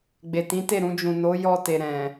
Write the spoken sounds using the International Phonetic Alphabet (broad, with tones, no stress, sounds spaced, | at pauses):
ɡ͡b e˨ t ĩ˨˦ t e˦˨ ɾ ũ˧ d͡ʒ ũ˨ n o˨˦ j ɔ˧ t e˨ ɾ ɛ̃˨